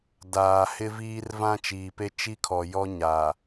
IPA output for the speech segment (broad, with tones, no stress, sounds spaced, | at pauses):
d aː˨ h ɪ˦ v iː˦ r v ã˦ t͡ʃ iː˨ p e˦ t͡ʃ i˦ kʰ ɔ˨ j ɔ˦ ɲ a˨